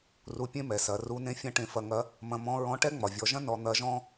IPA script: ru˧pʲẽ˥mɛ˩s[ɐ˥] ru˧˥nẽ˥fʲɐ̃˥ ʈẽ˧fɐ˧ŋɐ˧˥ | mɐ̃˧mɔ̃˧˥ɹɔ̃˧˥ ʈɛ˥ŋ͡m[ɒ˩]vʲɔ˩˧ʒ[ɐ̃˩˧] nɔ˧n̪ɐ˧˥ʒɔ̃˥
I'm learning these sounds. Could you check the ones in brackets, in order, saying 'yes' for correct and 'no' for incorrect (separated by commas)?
no, yes, no